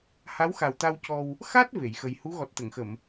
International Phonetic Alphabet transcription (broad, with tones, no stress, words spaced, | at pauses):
ha˧˥wxa˨˩wt̪a˧w cɔ˧w | xa˦˥t̚ ve˨˩˨jxə˧j hu˧˥ɣɔ˨˩t̚t̪ə˨˩˨ŋxə˨˩˨m